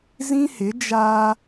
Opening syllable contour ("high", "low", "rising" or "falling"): high